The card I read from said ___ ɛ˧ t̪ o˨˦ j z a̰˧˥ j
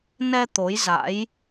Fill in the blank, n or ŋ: n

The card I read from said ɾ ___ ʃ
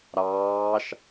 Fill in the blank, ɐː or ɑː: ɑː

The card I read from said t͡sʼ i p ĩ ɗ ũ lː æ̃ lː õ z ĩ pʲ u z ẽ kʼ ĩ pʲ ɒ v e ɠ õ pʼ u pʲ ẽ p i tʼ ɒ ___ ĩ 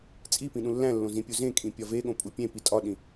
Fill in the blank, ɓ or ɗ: ɗ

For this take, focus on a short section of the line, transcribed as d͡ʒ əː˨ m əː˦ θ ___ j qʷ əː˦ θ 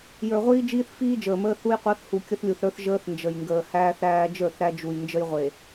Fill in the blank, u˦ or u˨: u˦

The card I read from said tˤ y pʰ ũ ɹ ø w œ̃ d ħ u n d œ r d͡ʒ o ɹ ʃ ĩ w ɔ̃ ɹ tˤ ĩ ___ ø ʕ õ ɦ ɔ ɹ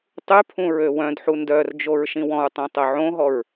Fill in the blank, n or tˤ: tˤ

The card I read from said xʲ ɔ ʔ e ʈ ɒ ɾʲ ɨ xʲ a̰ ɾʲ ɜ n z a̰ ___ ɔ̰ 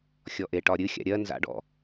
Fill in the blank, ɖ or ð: ɖ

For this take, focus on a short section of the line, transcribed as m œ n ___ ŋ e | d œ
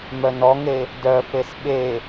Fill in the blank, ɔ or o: ɔ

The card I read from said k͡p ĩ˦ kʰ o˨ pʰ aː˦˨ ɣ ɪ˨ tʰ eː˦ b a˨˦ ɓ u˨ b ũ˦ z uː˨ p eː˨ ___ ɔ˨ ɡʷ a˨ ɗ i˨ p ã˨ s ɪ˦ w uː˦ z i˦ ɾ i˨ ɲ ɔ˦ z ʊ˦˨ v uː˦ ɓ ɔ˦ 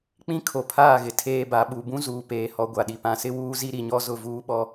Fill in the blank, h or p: h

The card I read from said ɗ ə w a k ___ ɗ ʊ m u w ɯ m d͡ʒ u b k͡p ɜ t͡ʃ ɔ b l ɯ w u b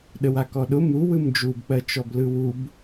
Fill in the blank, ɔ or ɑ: ɔ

